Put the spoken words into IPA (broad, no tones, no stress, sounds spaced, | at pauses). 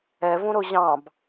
ɛ v ũ ɾ ʊ ʑ ɑ̃ b